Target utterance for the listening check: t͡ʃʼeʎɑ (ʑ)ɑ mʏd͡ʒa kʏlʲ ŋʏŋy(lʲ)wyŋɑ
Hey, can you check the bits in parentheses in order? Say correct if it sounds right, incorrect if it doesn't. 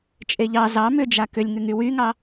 incorrect: z, incorrect: none

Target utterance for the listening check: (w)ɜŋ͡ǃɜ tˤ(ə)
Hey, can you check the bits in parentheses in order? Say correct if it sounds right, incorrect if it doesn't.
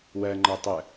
correct, correct

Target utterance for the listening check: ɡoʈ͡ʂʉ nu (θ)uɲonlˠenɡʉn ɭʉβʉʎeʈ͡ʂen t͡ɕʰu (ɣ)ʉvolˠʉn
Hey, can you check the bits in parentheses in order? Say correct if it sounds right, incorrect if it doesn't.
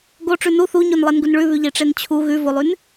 correct, correct

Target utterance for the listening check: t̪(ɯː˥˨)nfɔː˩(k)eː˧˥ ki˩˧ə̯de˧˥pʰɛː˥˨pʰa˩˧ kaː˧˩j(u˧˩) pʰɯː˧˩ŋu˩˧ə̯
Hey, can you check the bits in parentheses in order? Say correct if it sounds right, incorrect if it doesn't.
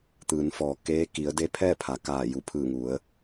incorrect: ɯː˩˧, correct, correct

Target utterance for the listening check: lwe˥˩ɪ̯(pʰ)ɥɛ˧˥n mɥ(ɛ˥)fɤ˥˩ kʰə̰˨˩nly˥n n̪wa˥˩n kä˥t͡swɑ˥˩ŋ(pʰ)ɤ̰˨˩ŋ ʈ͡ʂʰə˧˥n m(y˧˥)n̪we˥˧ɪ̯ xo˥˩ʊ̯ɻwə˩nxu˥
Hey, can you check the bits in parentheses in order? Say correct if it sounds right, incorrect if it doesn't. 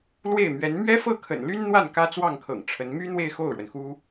incorrect: m, correct, incorrect: kʰ, incorrect: y˥

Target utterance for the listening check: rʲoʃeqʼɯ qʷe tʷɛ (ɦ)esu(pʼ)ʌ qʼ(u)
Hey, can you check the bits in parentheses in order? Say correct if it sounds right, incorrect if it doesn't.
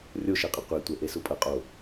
incorrect: ʔ, correct, incorrect: o

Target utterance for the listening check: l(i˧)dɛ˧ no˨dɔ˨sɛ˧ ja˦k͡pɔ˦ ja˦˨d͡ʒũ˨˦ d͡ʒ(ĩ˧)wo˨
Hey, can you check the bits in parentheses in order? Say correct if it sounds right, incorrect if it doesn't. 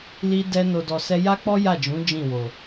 correct, incorrect: ĩ˦˨

